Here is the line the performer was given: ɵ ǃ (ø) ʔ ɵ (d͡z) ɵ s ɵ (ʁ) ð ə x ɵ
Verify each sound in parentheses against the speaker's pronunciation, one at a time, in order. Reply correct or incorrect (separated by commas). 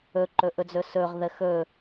incorrect, correct, correct